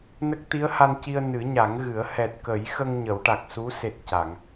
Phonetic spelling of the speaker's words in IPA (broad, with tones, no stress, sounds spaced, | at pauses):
n ə˦˥ k̚ t̪ i˧˥ ə̯ h a˧ n c i˧ ə̯ n ɨ˨˩˦ ɲ a˨˩˦ ŋ ɣ ɨ˨˩˦ ə̯ h ɛ˨˩ t̚ k ə˨˩˦ j x ə˧ ŋ ɲ ə˨˩˦ w ʈ a˨˩ k̚ s u˧˥ s e˨˩ t̚ c a˨˩˨ ŋ